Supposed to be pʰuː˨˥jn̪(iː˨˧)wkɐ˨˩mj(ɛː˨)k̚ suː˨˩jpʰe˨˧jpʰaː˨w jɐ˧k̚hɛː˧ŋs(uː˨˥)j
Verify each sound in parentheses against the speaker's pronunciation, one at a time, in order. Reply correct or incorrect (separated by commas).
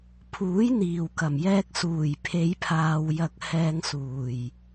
incorrect, incorrect, incorrect